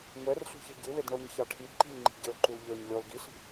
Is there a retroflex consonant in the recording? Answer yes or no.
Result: yes